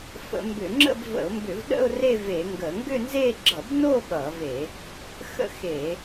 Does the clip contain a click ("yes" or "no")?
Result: yes